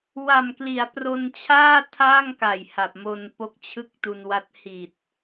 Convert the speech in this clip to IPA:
w a˨˩ m k l i˩˦ a̯ p r o˧ n t͡ɕʰ aː˥˩ tʰ aː˥˩ ŋ k a˨˩ j h a˨˩ p̚ m o˧ n p o˦˥ k̚ t͡ɕʰ ɯ˥˩ k̚ t u˧ n w a˦˥ t̚ h i˨˩ t̚

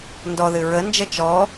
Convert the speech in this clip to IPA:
n d ɔ ð ɨ ɹ ə n d͡ʒ ə t͡ʃ ɔ

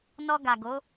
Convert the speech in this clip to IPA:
n ɔ˧ ɡ a˨ ɡ o˨˦

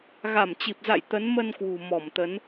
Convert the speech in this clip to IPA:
ɣ a˧˩ m t͡ɕ i˨˩ p̚ z a̰˧˨ j t̪ ə˨˦ n m ə˧ n k w ṳ˨˩ m ɔ˧˩ m t̪ ə˨˦ n

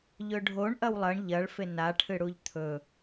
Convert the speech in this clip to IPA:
ʎ ɵ ɖʱ o ɳ ʔ ɐ w lˠ ɐ ɳ ʎ ɐ ɭ f e n a ʈʰ ɨ ɽ u ʎ t̪ʰ ɵ

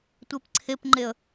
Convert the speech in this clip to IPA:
tʷ e p ǀʰ e p ŋ͡ǃ e ə̯

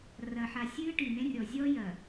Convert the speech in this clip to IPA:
r ɐ˨ ħ a˨ sʲ ɨː˦ ʈ i˨ n ẽ˦ rʲ ɔ˨ zʲ ɔ˦ j ɐ˨

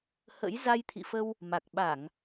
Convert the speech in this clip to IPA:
h ə̰˧˥ j z a˧ j t̪ʰ ḭ˧˨ f ə˧ w | m a˨˩ k̚ ɓ a˧˩˨ ŋ

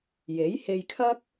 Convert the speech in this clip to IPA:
j e˨˥ j h e˧ j kʰ ɐ˥ k̚

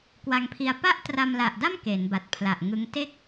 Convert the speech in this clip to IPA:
k w a˧ ŋ pʰ i˧ a̯ p a˥˩ ʔ t r a˧ m l a˨˩ ʔ d a˥˩ m k e˩˦ n b a˨˩ t̚ pʰ l a˨˩ ʔ ŋ ɯ˦˥ ŋ t e˥˩ k̚

